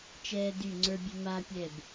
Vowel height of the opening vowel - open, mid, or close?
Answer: mid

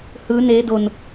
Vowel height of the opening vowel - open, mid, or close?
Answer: close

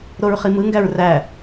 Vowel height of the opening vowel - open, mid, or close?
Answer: mid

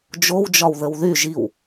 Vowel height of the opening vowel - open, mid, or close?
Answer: mid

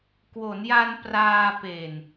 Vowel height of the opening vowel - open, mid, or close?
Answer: mid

